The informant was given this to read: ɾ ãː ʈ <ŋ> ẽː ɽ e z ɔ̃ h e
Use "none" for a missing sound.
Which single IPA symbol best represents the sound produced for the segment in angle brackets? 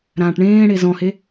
ɳ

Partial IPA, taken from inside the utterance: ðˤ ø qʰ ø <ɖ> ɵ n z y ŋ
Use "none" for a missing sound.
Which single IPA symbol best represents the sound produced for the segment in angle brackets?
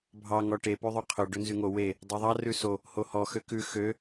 ɖ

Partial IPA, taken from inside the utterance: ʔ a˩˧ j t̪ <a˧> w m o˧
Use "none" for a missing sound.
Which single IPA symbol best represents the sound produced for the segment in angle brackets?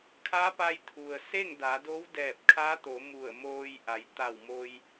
a˧˩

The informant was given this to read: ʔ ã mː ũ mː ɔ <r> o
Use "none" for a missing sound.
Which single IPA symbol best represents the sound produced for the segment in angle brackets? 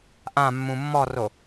r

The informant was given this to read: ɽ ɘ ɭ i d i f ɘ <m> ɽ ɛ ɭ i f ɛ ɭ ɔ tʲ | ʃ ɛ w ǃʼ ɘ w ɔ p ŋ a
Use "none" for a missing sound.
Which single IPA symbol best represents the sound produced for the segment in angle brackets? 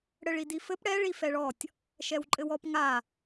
p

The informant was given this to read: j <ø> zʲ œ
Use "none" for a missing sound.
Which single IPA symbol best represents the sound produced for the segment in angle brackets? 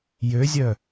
ø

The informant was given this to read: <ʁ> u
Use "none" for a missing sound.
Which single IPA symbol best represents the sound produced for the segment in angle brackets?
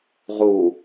ʁ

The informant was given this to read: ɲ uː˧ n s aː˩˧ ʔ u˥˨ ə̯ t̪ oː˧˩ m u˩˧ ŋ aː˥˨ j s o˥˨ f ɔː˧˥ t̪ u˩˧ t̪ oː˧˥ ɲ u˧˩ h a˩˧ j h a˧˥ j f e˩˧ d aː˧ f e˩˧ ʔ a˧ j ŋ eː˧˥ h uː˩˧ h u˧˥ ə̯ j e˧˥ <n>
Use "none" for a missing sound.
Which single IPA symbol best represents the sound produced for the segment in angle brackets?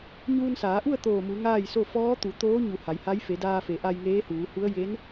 n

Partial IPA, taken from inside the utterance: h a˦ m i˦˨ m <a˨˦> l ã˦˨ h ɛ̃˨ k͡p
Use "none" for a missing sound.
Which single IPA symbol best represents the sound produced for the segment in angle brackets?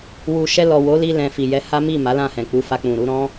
a˨˦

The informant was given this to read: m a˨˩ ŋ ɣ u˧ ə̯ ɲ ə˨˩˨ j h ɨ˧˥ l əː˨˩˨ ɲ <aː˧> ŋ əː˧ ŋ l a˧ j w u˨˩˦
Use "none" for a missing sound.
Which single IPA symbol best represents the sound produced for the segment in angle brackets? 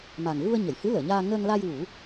aː˧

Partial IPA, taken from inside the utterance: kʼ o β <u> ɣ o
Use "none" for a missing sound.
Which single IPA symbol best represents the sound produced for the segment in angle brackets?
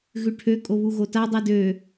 u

